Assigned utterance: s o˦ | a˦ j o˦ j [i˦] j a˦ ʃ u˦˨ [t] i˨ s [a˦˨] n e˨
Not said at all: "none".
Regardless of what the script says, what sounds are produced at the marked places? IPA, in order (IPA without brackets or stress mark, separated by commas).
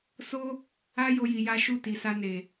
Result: i˧, t, a˧